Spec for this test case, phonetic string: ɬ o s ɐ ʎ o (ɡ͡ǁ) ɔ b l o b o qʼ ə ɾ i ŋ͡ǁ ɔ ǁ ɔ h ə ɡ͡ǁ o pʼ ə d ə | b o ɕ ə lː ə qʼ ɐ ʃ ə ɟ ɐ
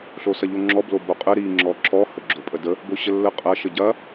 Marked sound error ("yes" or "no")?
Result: yes